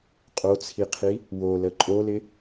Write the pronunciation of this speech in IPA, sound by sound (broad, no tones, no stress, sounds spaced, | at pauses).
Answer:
qʼ o t͡sʰ i qʰ i | w o l ə ǃʼ o l ɪ